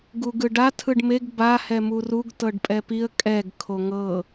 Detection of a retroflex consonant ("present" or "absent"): present